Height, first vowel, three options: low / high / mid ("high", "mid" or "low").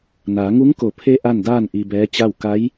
low